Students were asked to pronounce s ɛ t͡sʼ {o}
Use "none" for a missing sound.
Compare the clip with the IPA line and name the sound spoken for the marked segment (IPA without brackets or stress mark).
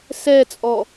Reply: ɔ